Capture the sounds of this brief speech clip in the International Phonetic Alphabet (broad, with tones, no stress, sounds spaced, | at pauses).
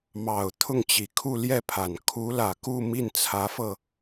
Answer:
m ɑ˨˩ ʊ̯ t̪ʰ ʊ˥˩ ŋ t͡ɕ i˨˩ kʰ u˥˧ l j ɛ˥˩ pʰ a˨˩ n kʰ u˧˥ l ä˨˩ k u˥˧ m i˥˩ n t͡sʰ ä˧˥ f ɤ˧